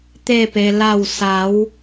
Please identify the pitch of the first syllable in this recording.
falling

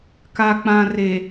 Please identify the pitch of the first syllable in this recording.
low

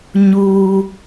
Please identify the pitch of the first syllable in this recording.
high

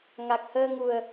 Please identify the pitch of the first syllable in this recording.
low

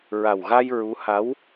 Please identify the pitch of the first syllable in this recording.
low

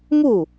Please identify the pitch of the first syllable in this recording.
falling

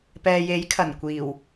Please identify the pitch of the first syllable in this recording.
low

